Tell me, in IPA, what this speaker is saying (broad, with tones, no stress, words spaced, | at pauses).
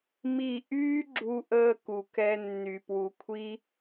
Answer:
mi˦˨ ʔyː˦ɡ͡ǁu˧ʔəː˧ ku˨kɛ˦ nːy˨pwu˨kʷʰi˦